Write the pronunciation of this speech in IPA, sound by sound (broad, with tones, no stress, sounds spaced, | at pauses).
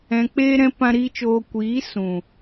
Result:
ɛ̃˧ k͡p eː˦ ɾ ɛ̃˦ p ã˦ ɾ i˦ t͡ʃ oː˧ kʷ iː˨˦ s ũ˨